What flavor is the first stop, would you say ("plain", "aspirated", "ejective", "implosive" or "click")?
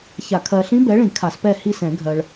aspirated